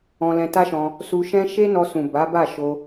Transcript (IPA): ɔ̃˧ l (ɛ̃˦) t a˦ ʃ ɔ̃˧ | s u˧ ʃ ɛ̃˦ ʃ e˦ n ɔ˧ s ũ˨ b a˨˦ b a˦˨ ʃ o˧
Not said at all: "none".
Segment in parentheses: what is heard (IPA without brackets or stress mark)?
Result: ɛ̃˧